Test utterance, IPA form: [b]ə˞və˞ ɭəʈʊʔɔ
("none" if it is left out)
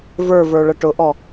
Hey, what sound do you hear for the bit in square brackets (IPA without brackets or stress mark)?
v